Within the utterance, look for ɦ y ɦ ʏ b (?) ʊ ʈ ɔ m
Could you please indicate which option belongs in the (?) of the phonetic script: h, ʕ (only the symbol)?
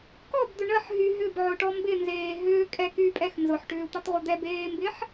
ʕ